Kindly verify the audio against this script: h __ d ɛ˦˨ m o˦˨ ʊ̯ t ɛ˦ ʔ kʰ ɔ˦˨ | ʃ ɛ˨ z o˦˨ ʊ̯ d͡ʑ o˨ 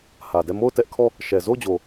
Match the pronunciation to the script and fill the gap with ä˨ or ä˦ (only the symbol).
ä˨